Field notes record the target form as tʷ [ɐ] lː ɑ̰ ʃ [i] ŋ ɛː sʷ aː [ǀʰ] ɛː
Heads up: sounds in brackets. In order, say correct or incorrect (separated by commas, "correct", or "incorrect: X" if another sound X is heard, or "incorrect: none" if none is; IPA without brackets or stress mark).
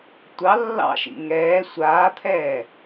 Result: incorrect: ɑ, incorrect: ḭ, incorrect: t̪ʰ